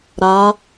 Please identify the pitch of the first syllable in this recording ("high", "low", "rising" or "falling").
rising